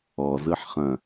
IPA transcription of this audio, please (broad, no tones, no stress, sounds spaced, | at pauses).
ɔ z ɯ ħ χ ɐ̃